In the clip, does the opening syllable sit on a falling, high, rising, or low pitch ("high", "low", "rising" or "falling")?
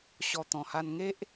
low